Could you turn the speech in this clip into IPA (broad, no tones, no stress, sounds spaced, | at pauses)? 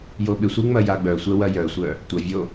j o ɓ ɪ sʷ i ŋ͡m ɐ j a ɡ͡b œ sʷ ɛ w ɐ j œ sʷ œ | tʷ ɐ vʲ o